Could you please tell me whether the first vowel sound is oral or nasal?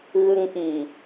oral